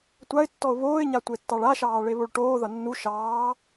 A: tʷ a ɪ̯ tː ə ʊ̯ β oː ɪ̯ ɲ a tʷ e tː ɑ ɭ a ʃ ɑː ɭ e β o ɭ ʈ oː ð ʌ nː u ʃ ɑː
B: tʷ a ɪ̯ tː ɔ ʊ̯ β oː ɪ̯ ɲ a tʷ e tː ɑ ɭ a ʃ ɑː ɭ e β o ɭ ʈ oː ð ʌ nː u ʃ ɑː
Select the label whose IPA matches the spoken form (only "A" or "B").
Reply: B